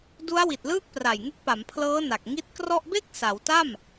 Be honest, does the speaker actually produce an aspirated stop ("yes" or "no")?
yes